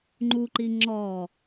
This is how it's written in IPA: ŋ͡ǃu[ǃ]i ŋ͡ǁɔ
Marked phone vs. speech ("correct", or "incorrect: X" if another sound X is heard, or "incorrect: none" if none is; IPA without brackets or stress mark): correct